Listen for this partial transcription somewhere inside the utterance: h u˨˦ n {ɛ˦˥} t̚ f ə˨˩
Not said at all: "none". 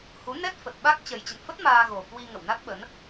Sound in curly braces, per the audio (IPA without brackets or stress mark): ɛ˦˥